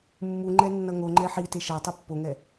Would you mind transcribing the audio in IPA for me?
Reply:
mː u ŋ͡ǃ ɛ nː ʌ ŋ o ŋ͡ǃ ɛ ħ i t e ʃ a tˤ ɯ pː o ŋ ɛ

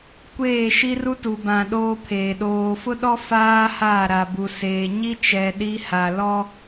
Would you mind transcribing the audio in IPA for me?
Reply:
kʷ eː˦˨ ʃ i˦ r u˦ t u˨ b ã˨ ɗ oː˦ pʰ eː˨ ɗ oː˨ f ʊ˦ ɗ ɔ˦ f aː˦ h aː˦˨ ɾ a˨ b u˨ s eː˨ ɲ i˦ t͡ʃ ɛ˨ ɗ i˦ h a˨ l ɔ˦

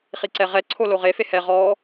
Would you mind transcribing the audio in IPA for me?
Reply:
χ i ǀ ɛ ʁ ɛ ǀʰ o l o ʁ e f e h ɛ ʁ ɔ

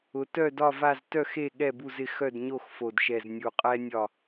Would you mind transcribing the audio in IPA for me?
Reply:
ʊ˩˧ t œ˦˨ d ɒ˦˨ v a˦˨ z t œ˦˨ x e˦˨ ɠ ɛ˦˨ b u˦˨ z ɪ˦˨ x œ˦˨ d ɲ o˦˨ x f o˨˩ d ʃ ɛ˨˩ z nʲ u˨˩ qʼ ɛ˦ nʲ ɒ˦˨

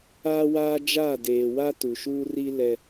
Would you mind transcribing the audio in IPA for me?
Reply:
aː˦ w aː˦ d͡ʒ aː˦˨ d eː˨ w a˦ t u˨ ʃ uː˦ r i˦ l ɛ˦

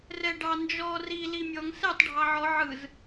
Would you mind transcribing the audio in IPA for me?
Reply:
r ɛ ɖ ɑ n d͡ʒ ɔ r i l i mʲ ɔ ŋ s ɛ tˤ ɖʱ ɑ ʕ ɔ ʕ ɯ z

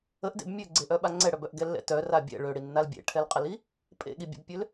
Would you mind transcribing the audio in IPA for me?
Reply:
ə ʔ d ḛ b mʲ ø ɡ͡ǀ e ʔ œ ɓ a ŋ͡ǀ ɛ ɽ œ b œ ʔ ɡ ɛ lː ɛ̰ t œ r a bʲ ɛ̰ ɭ ø ɽ i nː a l bʲ ḛ ʈʰ ɛ l qʼ ə l i | pʼ ḛ ɠ i bʲ ḛ b pʲ ø l

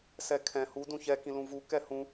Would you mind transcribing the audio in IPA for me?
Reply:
s ɛ kʰ ɛ̃ h u d ũ ç ɛ k ĩ l ũ v u k ɛ h ũ

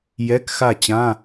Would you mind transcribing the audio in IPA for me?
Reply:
j ɛ˧˥˧ k x a˥˨ t͡ɕ ã˧˥˧

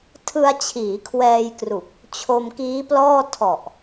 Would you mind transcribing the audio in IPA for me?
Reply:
tʰ ɯ˧ a̯ t͡ɕʰ iː˩˦ kʰ w ɛː˧ j k r u˨˩ k̚ | t͡ɕʰ o˧ m k iː˦˥ p l ɔː˥˩ tʰ ɔ˨˩ ʔ

